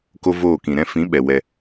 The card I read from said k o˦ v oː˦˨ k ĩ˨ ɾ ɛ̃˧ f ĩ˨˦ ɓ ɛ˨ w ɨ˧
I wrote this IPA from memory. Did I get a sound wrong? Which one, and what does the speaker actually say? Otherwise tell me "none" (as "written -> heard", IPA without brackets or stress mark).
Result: ɨ˧ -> ɛ˧